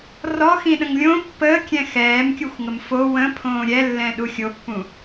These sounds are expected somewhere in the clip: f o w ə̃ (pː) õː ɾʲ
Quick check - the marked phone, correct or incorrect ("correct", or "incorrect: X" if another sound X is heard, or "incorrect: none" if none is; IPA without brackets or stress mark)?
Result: incorrect: pʰ